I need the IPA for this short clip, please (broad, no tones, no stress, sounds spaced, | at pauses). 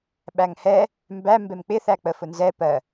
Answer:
ɓ æ ŋ h ɛ | m b æ m b ɛ m k͡p ɪ θ æ k͡p ə f ʊ n z ɛ p ɜ